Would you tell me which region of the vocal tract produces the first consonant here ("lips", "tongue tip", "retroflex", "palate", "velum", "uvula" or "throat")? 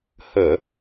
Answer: throat